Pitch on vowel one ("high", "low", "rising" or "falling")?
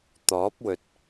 rising